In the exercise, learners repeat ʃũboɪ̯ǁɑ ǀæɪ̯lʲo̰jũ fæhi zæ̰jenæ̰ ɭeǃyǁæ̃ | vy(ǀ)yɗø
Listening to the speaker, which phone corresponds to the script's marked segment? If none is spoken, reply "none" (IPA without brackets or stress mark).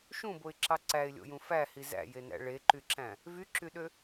ǁ